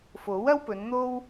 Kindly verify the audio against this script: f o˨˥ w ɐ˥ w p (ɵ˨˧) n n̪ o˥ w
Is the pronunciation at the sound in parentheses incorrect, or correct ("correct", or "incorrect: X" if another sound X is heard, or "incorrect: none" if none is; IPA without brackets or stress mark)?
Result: correct